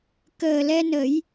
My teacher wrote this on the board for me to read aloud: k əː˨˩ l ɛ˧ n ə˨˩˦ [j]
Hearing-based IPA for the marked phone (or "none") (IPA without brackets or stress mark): j